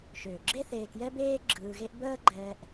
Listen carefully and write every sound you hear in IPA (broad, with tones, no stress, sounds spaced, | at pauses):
ʃ øː˩ ɡ͡ǁ e˦ θ eː˨ k j ɛ˦ b eː˥ ɡ͡ǁ ɯː˨ ɣ e˦ ʔ b əː˦ ɡ͡ǃ ɛː˨ ʔ